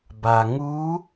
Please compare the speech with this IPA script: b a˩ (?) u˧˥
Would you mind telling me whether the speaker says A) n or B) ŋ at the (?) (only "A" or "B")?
B